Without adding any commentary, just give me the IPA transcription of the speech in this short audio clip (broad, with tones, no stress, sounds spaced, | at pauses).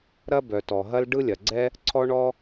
ɾ ɐ˥ b œ˩ t ɔ˩ ɦ ɐ˥ l ɖ ɯ˥ lʲ ɐ˩ ɡ͡ǀ ɛ˥ | ǀʰ ɔ˥ ɳ ɔ˥